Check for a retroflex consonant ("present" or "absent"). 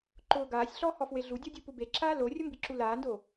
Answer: absent